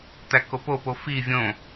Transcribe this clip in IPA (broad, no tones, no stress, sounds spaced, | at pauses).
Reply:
t̪ æ k o p o p o f i vʲ õ